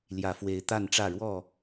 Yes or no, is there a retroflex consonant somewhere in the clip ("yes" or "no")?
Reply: yes